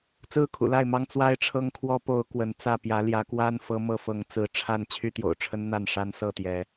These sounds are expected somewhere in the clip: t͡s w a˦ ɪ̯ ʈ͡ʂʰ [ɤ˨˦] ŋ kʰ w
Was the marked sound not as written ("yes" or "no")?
yes